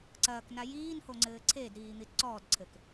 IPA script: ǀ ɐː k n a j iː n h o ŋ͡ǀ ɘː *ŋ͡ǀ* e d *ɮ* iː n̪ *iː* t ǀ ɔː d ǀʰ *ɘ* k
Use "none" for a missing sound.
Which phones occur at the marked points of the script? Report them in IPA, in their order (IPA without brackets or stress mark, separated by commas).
ǀʰ, ɾ, i, ɘ